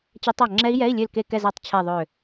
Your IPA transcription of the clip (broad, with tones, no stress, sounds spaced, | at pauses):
t͡ɕ ɛ˦˥ tˤ a˦˨ ŋ͡ǁ ɛ˦˥ i̯ j ɛ˧˥˧ i̯ lʲ ø˦˨ l k e˦˨ k ɛ˦˨ z a˦˨ tˤ t͡ɕʰ ɛ˦˨ ðˤ ø˦˨